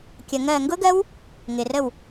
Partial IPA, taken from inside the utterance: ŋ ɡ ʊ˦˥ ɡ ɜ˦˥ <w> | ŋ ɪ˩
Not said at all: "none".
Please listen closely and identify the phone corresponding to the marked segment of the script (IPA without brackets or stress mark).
w